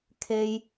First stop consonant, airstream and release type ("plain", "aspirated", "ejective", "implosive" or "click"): aspirated